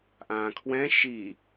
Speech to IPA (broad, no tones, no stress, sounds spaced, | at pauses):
ʔ ã kʰ w ɛ̃ ʃ i